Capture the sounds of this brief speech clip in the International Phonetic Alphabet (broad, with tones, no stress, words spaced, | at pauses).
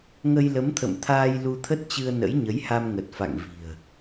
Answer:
ŋə˧jlə˨˦mt̪ʰə̰˧˨mt̪ʰaː˧j lu˧t̪ʰə˦˥t̚t͡ɕɨ˧ə̯nə̰˧˥j ɲə˨˦jha˧m ŋə˨˩t̚fa̰˧˨ŋ vi̤˨˩ə̯